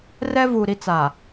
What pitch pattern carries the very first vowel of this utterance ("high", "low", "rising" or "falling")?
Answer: high